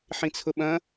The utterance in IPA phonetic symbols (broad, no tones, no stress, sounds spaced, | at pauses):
ħ ĩ t͡sʰ ʊ ɓ ɐ̃